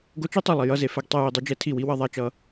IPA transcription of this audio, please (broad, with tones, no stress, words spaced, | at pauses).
ɡo˦ t͡ʃe˦tˤi˨ lˠi˨jʌ˦ze˨fɛ˦ɡ tˤɛ˦ji˦dˤe˦ d͡ʒɛ˦tʰi˦˨wi˦ wʌ˦ðˤa˦t͡ʃʌ˦